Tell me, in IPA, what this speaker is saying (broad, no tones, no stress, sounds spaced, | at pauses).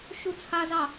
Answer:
ʃ u t͡sʰ a z ɑ